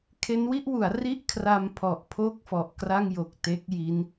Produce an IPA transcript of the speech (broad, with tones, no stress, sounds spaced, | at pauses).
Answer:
kʰ e˦˥ n w i˥˩ ʔ w u˩˦ a̯ r i˥˩ ʔ kʰ r a˧ m pʰ ɔ˨˩ ʔ pʰ o˦˥ k̚ f ɔ˨˩ ʔ k r a˥˩ ŋ j o˨˩ k̚ t e˦˥ k̚ j i˦˥ n